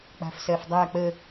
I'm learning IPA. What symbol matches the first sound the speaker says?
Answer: k͡p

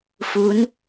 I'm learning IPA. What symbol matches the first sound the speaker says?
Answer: f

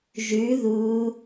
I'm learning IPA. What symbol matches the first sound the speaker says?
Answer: ʒ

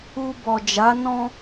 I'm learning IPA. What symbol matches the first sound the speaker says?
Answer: u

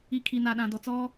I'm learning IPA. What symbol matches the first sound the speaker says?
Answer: i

